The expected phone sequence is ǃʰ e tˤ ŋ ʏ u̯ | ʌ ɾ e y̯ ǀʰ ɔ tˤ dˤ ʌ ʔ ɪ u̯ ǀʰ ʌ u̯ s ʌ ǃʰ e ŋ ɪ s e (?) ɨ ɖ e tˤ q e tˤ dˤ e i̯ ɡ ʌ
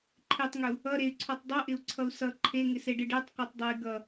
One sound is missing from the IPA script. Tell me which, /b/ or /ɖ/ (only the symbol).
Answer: ɖ